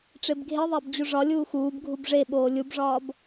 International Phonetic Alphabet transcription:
ʈ͡ʂebɡʱeðˤæb d͡ʑuʐɒlʲuː xuːb ɡʱubʐeɓoː lʲubʐɒːb

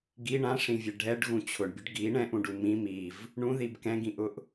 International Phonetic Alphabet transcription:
ɡi ɳãʂĩvʲɛ ɖʱɛɖɣũ t͡ɕʰʊɳbʲʊɖ ɡi ɳɛ̃ʔũɖu mĩ miv | ɳũðib kɛ̃ɡĩʔʊʔ

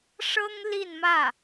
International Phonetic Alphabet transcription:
ʂɤ˥ŋ li˥˧nmä˥˩

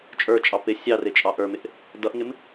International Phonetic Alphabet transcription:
t͡ʃʼə˞t͡ʃʼɑ pɪ sʲɑrɪt͡ʃʼɑ ʔə˞mɪʔ | dʌʔŋɪm

